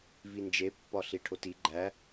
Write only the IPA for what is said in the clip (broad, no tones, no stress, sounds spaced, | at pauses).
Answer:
v i n d͡ʒ e pː ɒ ɬ i ʈʰ o t i ɡ͡ǃ æ